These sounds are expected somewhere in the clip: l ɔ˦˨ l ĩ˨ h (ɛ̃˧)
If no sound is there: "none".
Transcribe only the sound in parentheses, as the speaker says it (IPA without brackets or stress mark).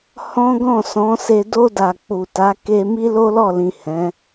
ɛ̃˨˦